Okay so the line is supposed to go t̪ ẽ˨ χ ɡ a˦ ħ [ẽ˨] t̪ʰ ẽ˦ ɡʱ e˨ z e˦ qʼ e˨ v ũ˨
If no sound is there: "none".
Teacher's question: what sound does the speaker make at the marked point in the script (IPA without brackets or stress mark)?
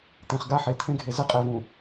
e˨